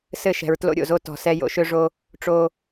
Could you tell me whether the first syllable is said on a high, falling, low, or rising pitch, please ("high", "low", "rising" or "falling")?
falling